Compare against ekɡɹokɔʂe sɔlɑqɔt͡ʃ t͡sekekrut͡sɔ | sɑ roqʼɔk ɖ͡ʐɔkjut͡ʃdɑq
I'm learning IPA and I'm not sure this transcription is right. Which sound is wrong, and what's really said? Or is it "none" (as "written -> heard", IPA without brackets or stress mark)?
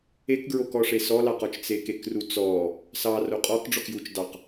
none